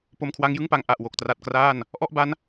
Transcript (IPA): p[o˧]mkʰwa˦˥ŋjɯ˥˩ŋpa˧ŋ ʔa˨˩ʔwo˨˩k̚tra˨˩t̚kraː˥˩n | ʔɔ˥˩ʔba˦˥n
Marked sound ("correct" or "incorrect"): correct